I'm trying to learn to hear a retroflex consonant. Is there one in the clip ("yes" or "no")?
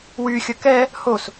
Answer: no